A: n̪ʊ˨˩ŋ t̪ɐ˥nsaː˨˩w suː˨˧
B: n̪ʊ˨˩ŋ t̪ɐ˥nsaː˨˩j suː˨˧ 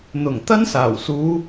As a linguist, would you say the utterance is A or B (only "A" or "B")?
A